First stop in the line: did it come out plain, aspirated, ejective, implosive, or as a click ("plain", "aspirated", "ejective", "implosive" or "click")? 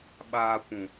implosive